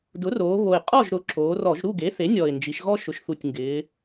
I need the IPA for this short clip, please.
dʊ˩˥roː˩˧ βo˨˩ɪ̯ qʼɔ˥˨ʒɾʊ˩˥ ǁoː˩˧rɔ˧˩˧ʒ ɾu˥˨ɡe˩˥θe˩˥ nʲɔ˨˩ɪ̯nd͡ʒi˩˧ʃɣɔ˦ ʃʊ˩˥ʃθu˨˩tʲŋɡɪː˩˧

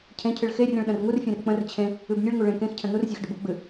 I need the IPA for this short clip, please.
cʰẽcʰɨɭ xerʲə̃ɭ ɗə̃rŋurfʲẽr k͡pə̃r t͡ɕʰẽ | ɨbnʲɨɭŋu ɭẽ kẽxcʰə̃ nurzʲex ɖəbuɡ͡bɨ

